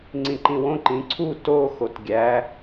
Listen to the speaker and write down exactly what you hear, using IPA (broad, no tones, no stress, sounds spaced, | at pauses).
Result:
ŋ͡ǀ ĩ ǃ ĩ w õ ǃ ĩ ǀʰ u t o x o t ɡʲ æ